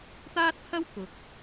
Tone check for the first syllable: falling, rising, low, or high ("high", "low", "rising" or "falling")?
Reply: high